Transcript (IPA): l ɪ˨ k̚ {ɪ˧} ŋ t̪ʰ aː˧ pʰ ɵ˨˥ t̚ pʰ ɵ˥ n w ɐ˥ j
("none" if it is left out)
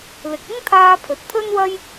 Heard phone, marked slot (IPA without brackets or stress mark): ɪ˥